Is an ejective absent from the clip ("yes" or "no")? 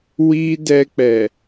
yes